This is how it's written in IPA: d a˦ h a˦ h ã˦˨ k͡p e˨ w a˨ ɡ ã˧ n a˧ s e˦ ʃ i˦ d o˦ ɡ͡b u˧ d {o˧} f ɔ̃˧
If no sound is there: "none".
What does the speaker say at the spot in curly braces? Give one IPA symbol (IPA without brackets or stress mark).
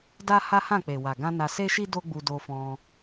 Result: o˧